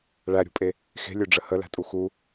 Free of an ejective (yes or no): no